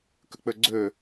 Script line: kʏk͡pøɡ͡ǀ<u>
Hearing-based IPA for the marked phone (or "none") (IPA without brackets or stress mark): ø